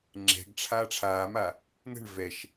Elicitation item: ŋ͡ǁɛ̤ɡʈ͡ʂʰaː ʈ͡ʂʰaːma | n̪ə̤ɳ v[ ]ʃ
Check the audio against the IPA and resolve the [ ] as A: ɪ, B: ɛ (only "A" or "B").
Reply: B